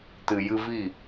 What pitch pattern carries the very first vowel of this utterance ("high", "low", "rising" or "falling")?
low